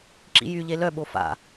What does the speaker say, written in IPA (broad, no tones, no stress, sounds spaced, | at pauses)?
ǁ ḭ j y ʎ e l œ ɓ o f a̰